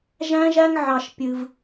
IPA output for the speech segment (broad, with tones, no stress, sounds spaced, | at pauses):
ʒ æ̃˦ ʒ æ˦ ŋ ʕ ɑ˧ ʃ pʲ ɨ˧ v